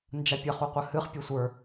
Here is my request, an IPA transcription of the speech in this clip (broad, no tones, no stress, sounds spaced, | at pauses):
n d͡ʒ a pʲ ə χ u qʷ ə h ɨ χ pʲ ə sʷ ə˞